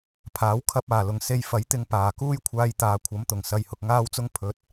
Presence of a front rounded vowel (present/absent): absent